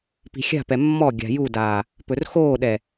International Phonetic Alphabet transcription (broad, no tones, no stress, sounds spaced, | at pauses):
p i̤ xʲ a̤ p ɛ mː ɔ ɡʲ a̤ j u d aː | p ɵ r x oː ɗ ɛ